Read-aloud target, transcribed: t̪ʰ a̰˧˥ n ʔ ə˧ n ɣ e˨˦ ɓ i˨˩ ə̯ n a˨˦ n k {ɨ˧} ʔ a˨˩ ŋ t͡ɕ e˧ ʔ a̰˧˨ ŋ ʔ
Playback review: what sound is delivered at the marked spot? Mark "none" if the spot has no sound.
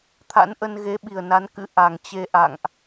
ɨ̰˧˥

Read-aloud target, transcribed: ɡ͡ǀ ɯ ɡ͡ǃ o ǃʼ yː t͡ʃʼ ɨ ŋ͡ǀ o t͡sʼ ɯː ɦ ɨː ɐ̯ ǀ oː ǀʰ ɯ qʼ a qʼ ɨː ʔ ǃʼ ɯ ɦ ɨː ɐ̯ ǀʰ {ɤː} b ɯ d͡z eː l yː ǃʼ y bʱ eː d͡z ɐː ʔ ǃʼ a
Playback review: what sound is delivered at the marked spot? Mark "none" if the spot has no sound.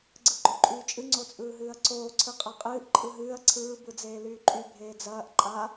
ɯː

